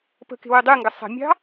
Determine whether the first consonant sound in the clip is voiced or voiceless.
voiceless